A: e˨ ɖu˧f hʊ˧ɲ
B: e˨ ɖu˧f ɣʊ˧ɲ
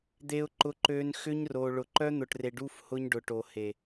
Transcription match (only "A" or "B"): A